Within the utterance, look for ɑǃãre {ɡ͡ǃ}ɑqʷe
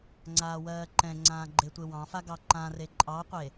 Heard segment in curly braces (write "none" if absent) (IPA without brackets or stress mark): ǃʼ